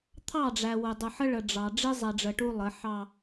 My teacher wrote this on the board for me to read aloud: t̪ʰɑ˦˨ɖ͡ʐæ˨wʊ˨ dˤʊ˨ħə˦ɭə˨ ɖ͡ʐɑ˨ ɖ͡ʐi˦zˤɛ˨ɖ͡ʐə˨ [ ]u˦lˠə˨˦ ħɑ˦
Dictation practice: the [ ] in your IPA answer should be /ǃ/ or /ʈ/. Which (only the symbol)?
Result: ʈ